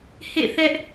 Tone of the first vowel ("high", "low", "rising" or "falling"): falling